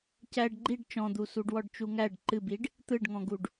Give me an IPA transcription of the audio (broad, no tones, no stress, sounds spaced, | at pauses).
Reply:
c æ ɖ ɡ͡ǃ i ɖ t͡ʃ ɔ̃ d̪ u s u ɖ w ɔ ɖ t͡ʃ u ŋ æ ɖ ǃ ɨ b i ɖ | t̪ ɯ ɖ ŋ ɔ̃ ɡ u ɖ